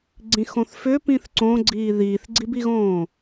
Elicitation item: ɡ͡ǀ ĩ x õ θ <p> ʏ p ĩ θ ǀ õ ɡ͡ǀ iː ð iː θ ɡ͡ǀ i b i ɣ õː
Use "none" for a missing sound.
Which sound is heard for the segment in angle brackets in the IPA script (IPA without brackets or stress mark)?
f